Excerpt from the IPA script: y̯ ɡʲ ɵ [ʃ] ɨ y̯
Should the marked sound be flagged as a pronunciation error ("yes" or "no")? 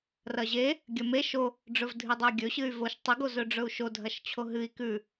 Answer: yes